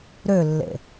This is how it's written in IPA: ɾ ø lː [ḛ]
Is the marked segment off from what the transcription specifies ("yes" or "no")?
no